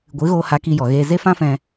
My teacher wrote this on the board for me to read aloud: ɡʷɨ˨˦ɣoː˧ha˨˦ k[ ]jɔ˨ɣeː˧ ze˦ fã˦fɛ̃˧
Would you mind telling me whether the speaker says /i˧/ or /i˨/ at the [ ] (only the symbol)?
i˧